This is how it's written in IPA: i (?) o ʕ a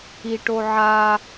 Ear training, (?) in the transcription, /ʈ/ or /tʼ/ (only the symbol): ʈ